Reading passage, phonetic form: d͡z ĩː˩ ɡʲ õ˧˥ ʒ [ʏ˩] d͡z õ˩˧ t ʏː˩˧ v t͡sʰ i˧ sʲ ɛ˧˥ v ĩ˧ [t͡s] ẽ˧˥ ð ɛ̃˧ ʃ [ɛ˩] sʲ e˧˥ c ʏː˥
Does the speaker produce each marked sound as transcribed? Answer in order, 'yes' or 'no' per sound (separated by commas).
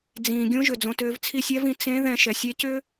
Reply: yes, yes, yes